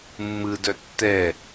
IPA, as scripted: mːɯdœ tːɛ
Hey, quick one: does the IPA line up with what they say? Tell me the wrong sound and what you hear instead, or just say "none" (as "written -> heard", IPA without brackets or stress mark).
none